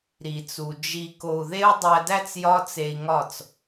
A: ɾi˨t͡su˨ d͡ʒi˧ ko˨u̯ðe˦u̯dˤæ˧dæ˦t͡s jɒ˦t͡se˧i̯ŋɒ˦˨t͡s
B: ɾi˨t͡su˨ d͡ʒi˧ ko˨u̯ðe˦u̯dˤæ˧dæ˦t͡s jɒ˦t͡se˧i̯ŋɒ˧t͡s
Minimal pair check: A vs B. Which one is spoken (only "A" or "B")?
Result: A